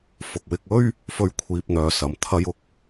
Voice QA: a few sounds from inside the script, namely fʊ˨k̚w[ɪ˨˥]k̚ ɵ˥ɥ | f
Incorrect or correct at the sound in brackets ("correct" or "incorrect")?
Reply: incorrect